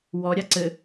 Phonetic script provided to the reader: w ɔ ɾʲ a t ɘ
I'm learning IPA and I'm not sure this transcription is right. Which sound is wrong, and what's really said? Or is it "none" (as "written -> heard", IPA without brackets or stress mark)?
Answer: t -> ǀ